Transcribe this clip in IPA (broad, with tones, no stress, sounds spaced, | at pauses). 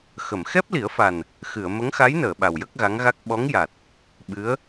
x ə˨˩˨ m x ɛ˦˥ p̚ l i˨˩˦ ə̯ f a˨˩ n | x ɨ˨˩˨ ə̯ m ə˧˥ ŋ x a˧˥ j n əː˨˩˨ ɓ a˨˩ w j ə˦˥ k̚ ɣ a˧˥ ŋ ɣ a˦˥ k̚ ɓ ɔ˧˥ ŋ j a˨˩ t̚ | ɓ ɨ˧˥ ə̯